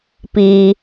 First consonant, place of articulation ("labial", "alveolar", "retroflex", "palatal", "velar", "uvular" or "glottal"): labial